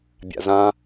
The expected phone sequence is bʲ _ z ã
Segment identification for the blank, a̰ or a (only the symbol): a̰